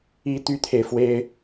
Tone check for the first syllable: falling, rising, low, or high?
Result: high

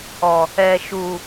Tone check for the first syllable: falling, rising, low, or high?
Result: low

